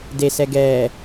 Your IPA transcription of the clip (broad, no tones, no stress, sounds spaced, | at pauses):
d e s ɛ ɡ ɛː